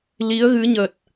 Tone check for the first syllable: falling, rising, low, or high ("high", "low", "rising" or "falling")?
rising